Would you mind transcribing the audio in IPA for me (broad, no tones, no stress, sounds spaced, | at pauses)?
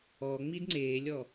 ɔ ŋ͡m i d ŋ͡ǀ eː lʲ ɔ